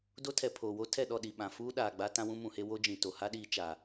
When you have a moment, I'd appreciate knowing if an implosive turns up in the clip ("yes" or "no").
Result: yes